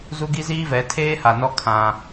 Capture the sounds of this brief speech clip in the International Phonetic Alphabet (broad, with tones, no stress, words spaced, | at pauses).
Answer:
zu˦ɡi˦ziː˦vɛ˨˦ tʰeː˦ha˨nɔ˦ kʰã˦